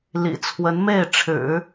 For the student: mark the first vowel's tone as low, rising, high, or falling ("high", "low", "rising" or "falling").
low